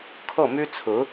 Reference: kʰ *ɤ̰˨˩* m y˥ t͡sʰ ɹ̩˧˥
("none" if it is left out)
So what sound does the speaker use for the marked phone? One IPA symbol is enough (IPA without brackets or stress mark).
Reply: ɤ˥˩